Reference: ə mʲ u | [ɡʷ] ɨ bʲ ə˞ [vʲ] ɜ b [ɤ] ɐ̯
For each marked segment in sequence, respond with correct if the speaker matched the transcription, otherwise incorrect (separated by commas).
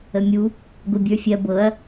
correct, incorrect, correct